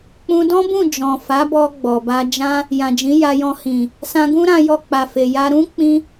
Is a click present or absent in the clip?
absent